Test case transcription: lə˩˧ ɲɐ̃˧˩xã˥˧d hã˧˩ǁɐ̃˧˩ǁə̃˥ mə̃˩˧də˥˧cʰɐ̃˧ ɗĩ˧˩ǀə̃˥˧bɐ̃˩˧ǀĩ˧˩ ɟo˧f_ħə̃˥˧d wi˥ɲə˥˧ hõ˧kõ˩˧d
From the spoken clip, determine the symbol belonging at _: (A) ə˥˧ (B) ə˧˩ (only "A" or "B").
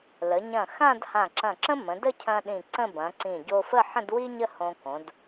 A